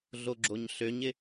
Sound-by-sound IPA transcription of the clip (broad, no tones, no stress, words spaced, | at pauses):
ɮoɡ͡ǁoɲɬøɲɪ